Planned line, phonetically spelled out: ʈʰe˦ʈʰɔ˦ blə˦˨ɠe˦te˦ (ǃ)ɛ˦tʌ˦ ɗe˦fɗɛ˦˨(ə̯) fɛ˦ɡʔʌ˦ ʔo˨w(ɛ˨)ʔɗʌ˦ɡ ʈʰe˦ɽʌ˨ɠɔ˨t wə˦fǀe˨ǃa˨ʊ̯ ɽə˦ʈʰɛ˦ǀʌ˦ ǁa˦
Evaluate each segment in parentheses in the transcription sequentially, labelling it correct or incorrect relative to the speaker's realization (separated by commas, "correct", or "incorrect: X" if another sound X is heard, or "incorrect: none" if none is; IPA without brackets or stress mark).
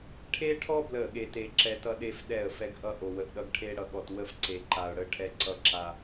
incorrect: ǁ, correct, incorrect: ə˨